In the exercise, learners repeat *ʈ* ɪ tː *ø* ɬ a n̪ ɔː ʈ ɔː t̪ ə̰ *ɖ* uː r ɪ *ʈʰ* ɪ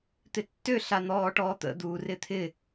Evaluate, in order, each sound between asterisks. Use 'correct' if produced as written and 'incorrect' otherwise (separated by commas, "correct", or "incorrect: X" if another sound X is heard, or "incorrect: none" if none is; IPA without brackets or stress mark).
incorrect: t̪, correct, incorrect: d̪, incorrect: t̪ʰ